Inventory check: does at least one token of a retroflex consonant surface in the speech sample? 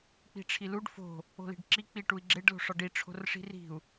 yes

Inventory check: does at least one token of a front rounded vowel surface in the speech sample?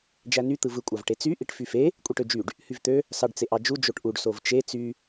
yes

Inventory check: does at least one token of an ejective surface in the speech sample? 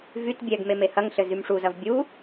no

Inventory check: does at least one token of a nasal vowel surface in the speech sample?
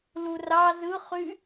no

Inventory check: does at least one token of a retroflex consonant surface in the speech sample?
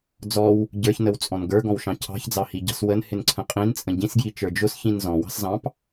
no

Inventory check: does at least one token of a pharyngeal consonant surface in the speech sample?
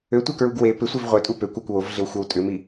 no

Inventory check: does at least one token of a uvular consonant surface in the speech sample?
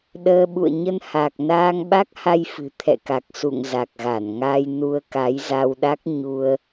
no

